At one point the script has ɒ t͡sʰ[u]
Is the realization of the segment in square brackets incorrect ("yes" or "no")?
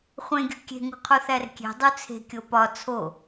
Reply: yes